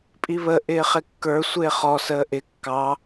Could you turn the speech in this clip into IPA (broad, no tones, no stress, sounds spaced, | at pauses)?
pʼ i β ə ʔ ɪː χ ɪ kː ə˞ sʷ ɪː χ ɔ s əː ʔ ɪ kː ɑ